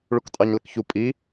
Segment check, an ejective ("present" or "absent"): present